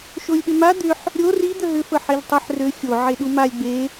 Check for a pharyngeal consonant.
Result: present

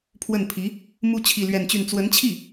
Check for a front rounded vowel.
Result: present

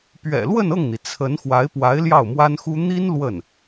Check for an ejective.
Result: absent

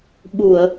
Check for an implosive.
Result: present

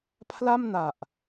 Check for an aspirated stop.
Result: present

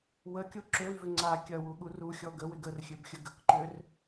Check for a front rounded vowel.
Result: present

